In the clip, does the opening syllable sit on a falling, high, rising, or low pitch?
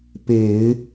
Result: low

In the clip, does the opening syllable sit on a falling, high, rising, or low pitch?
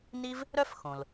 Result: high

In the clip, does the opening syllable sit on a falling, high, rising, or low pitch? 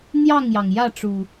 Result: falling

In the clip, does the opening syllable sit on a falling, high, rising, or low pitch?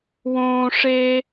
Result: high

